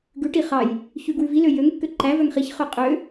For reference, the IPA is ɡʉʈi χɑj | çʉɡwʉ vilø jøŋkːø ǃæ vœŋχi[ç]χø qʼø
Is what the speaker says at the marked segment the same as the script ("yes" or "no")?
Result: yes